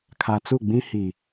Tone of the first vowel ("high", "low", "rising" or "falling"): low